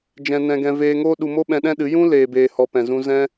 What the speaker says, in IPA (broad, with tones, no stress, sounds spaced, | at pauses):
d͡ʒ ɛ̃˧ n ɛ̃˧ ɡ ɛ̃˧ v eː˧ ŋ oː˦ ɗ u˧ m o˦ ɓ ɛ̃˧ ɗ ɛ̃˦ ɗ ɨ˨˦ j ũ˦ l eː˨ b eː˨ h ɔ˨ p ɛ̃˨ z ũ˧ z ɛ̃˧